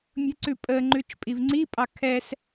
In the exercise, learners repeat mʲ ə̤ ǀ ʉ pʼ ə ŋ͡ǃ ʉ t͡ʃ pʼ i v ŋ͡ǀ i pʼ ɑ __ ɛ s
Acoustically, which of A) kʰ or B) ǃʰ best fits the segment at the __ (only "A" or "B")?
A